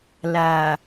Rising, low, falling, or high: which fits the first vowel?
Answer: low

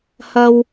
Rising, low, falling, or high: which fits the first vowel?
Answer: high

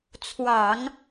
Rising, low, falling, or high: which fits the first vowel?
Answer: low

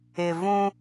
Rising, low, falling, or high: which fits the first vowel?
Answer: low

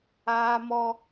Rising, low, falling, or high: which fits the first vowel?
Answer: high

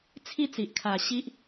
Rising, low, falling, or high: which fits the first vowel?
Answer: high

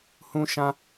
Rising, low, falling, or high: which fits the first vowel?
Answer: high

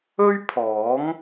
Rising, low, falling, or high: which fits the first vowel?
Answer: high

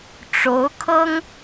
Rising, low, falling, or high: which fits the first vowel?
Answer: rising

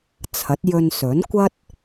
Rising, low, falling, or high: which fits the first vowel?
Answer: rising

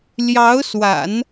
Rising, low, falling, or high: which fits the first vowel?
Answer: rising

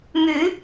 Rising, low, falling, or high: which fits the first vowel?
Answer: rising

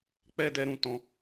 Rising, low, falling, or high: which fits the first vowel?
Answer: high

